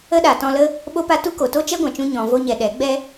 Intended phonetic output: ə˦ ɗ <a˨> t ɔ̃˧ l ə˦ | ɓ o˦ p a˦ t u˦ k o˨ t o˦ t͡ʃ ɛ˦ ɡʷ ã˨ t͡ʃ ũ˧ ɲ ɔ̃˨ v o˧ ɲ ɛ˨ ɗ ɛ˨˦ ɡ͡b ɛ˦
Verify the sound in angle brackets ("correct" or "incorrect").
correct